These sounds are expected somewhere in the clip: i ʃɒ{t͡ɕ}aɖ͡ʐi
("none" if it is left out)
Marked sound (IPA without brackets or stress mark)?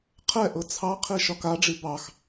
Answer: k